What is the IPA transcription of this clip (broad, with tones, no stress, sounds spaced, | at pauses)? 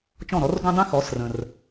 t͡ʃ ɔ̃˥˩ ɾ ɔ˩˥ r ɡ ũ˥ dˤ ĩ˥ x ɔ˩˥ s r ə̃˩ r